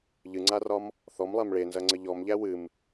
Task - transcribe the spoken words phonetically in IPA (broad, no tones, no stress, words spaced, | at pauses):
ʎɨŋ͡ǀarɒm | θɔmlˠæm ɭenzɐŋ͡ǀə ʎɔmʎæ wɨm